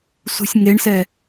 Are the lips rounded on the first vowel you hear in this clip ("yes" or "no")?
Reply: yes